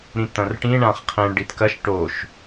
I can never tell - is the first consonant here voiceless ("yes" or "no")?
no